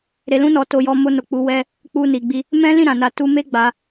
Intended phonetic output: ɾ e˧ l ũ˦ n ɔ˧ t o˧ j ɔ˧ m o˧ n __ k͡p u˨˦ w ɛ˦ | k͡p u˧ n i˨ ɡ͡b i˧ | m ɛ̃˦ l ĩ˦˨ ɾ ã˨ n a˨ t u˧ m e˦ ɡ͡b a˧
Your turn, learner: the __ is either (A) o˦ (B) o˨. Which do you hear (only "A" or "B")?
B